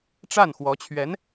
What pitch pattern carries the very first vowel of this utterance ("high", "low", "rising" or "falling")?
falling